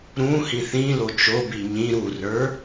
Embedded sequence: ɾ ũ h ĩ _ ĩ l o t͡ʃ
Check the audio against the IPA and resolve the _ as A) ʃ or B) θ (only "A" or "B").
B